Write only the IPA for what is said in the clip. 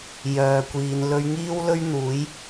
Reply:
jœː˨kʷiː˨˧n lɵ˧ɥŋiː˥wlɵ˥ɥn̪uː˨˥j

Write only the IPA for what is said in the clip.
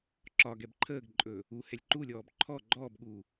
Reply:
ǁɒ ɡɛbǃʰəːɡǃʼɵː | uhɛlʲ ǃulʲɔːb ǃʰɔ ɡ͡ǃɔːbɠuː

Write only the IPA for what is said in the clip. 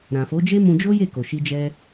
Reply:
ɾã˨fo˨˦d͡ʒe˦ mũ˧d͡ʒo˦je˦˨ ko˨ʃi˧d͡ʒɛ˧

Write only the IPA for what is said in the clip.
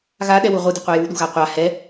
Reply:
ɣaɗɛwu ʁʷɪde̤qʷi juɗṳɣa qʷa hɛ

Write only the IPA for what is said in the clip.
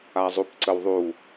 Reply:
azˤupǀəwðˤu

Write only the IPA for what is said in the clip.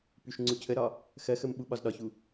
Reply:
pyʃŋ͡ǀucʰəɾɒ | xɜxəm ɓuɓɒzɗɒçu

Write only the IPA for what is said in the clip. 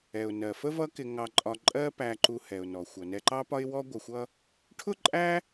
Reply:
ɛ˩ʊ̯nɜ˩fə˥ vʌ˥kɪ˧ ŋɑ˧ǃʼɒ˧ǃʼɜ˥ pæ˧ǃu˧hɛ˩ʊ̯nɔ˩ xʷʌ˩nɛ˧ǃɑ˥pɒ˥ɪ̯ wɔ˥ ɡʷə˧xʷʌ˥ | ʈʰʊ˥ǃʼæ˥

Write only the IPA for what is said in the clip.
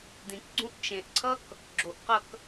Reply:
d̪ĩkɡ͡ǀũʔ t͡ʃẽʔǀʰʌk | ɡ͡ǁoʔqʌk

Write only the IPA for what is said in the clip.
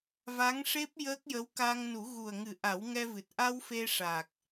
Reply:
va˧˥ŋʂe˦˥p̚ jəː˦˥k̚jə˧˥wka˧ŋ nu˨˩˦ɣu˨˩ə̯ŋɨ˨˩˦ ʔa˨˩˦wŋɛ˧vɨ˨˩t̚ ʔa˧w fe˧ʂa˨˩k̚

